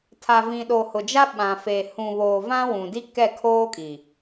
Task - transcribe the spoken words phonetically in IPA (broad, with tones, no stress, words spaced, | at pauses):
tʰa˨vĩ˨ɗo˨ hʊ˨d͡ʒa˦ɓã˨ fe˨ hũ˨βoː˨ vã˦wũ˨di˦kɛ˦˨ kʰoː˦kʼi˨